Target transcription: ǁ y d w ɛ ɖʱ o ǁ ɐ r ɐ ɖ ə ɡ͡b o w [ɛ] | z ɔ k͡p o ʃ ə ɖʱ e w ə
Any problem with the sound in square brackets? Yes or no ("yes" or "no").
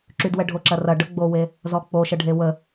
yes